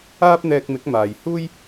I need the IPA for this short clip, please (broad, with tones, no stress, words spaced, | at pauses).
aː˥p̚n̪ɛː˧k̚mɪ˨˥k̚ maː˨j huː˥j